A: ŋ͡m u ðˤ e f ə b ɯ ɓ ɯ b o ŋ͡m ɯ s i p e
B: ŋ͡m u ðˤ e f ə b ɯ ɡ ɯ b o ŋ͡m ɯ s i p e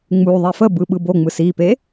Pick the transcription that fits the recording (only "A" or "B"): A